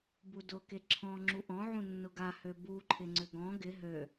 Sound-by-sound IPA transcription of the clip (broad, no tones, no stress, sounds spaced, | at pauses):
b u d ʊ k e ǁʰ ɔ̃ ŋ͡ǁ u ʔ ɔ̃ ʕ ũ nː ʊ ɡ a h ø b u ǃʰ ɪ ŋ͡ǀ ʏ ɡ ɔ̃ ɡ ɪ ɦ ø